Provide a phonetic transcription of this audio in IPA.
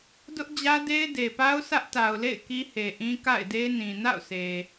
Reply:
d ʊ˦ ʔ d͡ʑ ä˦ d e˦ ɪ̯ d e˨ p a˦ ʊ̯ sʰ ä˦ ʔ t a˨ ʊ̯ l ḛ˦˨ ɪ̯ k i˦ h e˨ ʔ ĩ˦ k a̰˦˨ ɪ̯ d e˦ n ĩ˨ n a̰˦˨ ʊ̯ sʰ e˨

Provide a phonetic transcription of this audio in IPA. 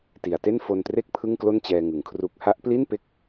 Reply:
t i˩˦ a̯ t e˥˩ n f o˧ n t r e˥˩ k̚ pʰ ɯ˥˩ ŋ k l o˥˩ n t͡ɕ ɛː˧ ŋ ɯ˩˦ ŋ kʰ r u˦˥ k̚ h a˦˥ ʔ p l i˥˩ n p e˦˥ k̚

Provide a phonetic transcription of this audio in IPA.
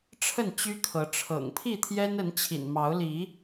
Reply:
ʈ͡ʂʰ ə˥˨ n t͡ɕ y˦ kʰ ɤ˨˦ ʈ͡ʂʰ ɤ̰˨˩ ŋ pʰ i˥˨ t̪ʰ j ɛ˦ n ə˨˦ n t͡ɕʰ ḭ˨˩ n m ɑ˨˦ ʊ̯ l i˨˦

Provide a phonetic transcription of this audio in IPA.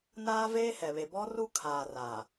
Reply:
n aː˦ v eː˦ h ɛ˨ β e˨ b ɔ˦ r u˦ kʰ aː˨ r aː˨

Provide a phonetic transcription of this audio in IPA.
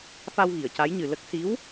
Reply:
f a˧ w ɣ i˨˩˨ ə̯ c a˧˥ j ɲ ɨ˨˩ l ə˦˥ k̚ s i˧˥ w

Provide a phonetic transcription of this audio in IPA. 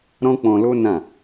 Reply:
ɾ ɔ̃˦ k͡p ɔ̃˧ l o˦ n ã˦˨

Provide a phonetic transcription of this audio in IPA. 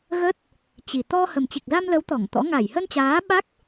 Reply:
ɣ ə˦˥ t̚ | t͡ɕ i˨˩ t̪ ɔ˧ h ə˨˩ m t͡ɕ i˨˩ k̚ z a˧ m l ə˨˦ w t̪ ɔ˧˩ ŋ t̪ ɔ̰˧˥ ŋ a˧˩ j h ə˧ n t͡ɕ aː˨˦ ɓ a˦˥ k̚

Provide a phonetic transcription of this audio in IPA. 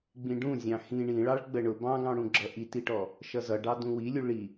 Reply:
ɡ͡b ĩ ɖ ũ zʲ ɑ̃ x ĩ ɳ ĩ ɭ ɑ ɭ ɡ͡b ə ɳ ʊ b ɑ̃ ɡ ɑ̃ ɽ ũ ɡ͡ǁ ʌ ʔ i t i ʈ ɔ | ʃ ʌ z ʌ ɖ ɑ d ũ w i lʲ u ɭ i

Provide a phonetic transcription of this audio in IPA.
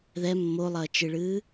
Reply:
ð ɛ mː o lˠ ɐː t͡ʃ ɨ ɭ ɨː

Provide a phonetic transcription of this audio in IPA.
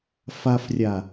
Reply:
f a f rʲ a

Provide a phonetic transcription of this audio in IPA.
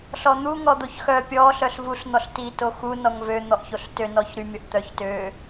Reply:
ɬ ɔ n̪ u ŋ ɔ d̪ o ç x œ pʲ ɔ ɬ œ ɬ v u ɬ n̪ ɔ ɬ t i t o x u n ɔ ŋ v ø n̪ ɔ ʔ ç o ɬ t ø n ɔ ç ɾ y mʲ ɔ ʔ t̪ œ ç t ø

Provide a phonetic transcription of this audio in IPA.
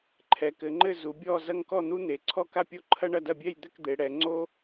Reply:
ǃʰ ɛ˩˧ k ɘ˩˧ ŋ͡ǃ ɘ˥˧ z u˩˧ bʲ ɔ˥˧ z ɐ˥ ŋ k ɔ˥˧ n̪ u˥ n̪ e˩˧ ǀʰ ɔ˥ k a˥˧ pʲ o˥˧ ǃʰ ɐ˥ ɳ ɐ˥˧ d ɐ˥˧ bʲ ɛ˥˧ j d̪ ɘ˥˧ k d̪ e˩˧ ɽ ɛ˩˧ ŋ͡ǀ o˥

